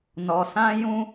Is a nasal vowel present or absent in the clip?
present